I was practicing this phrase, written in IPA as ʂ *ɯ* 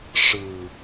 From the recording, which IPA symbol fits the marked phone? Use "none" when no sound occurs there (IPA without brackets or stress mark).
ɯ